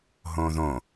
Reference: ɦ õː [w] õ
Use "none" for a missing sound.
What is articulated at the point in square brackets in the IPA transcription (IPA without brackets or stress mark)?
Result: ð